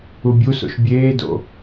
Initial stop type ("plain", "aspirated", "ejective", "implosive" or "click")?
plain